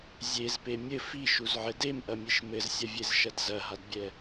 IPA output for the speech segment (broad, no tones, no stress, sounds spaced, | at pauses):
zʲ e z p e mʲ ɘ f i ʃ u z ʕ ɘ d e m ʔ ɐ mʲ e ʃ m ɘ z sʲ ɐ vʲ e z ʃ ɐ d z ɐ ɦ a d bʲ ɛ